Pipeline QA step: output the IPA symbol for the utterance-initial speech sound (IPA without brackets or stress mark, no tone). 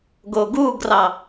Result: ɡ